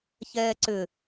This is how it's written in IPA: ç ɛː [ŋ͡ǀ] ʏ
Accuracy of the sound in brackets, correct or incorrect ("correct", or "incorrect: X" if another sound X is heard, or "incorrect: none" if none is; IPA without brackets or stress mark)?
incorrect: ǀ